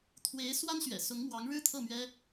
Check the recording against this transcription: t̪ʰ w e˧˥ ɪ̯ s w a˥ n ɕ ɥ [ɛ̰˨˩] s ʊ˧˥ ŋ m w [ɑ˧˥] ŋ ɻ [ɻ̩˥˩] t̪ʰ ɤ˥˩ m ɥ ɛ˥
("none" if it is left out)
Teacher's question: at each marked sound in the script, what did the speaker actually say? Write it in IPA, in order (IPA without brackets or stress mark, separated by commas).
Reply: ɛ̰˨˩, ɑ˧˥, ɻ̩˥